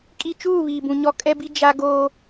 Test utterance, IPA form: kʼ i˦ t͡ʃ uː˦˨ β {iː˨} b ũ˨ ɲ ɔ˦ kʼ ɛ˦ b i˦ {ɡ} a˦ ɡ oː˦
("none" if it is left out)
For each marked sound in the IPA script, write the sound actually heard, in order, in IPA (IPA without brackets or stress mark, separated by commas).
iː˨, d͡ʒ